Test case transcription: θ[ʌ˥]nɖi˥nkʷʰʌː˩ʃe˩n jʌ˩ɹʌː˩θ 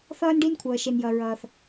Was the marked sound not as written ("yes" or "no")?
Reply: yes